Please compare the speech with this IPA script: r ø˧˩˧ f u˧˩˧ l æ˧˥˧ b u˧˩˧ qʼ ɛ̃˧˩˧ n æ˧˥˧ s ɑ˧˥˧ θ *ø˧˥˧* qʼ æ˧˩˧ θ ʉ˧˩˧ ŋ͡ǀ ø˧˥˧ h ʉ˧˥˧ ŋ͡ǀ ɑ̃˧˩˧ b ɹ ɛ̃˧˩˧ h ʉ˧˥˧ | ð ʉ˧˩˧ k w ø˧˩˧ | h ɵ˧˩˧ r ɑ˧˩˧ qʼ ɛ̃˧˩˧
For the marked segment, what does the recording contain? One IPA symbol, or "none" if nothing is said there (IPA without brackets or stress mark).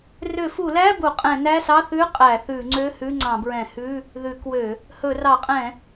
ʉ˧˥˧